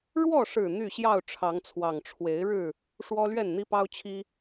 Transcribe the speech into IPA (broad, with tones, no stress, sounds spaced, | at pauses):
ɻ w ɔ˥˨ ʂ ɻ̩˨˩ n̪ y˥˨ ɕ j ɑ˥˨ ʊ̯ ʈ͡ʂʰ ɑ˨˦ ŋ t͡sʰ w ɑ˨˩ ŋ ʈ͡ʂʰ w e˨˦ ɪ̯ ɻ ɻ̩˥˨ | ʂ w ɔ˦ l ɥ ɛ˥˨ n n̪ i˦ p ɑ˦ ʊ̯ t͡ɕʰ i˦